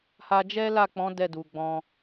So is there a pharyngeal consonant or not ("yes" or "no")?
no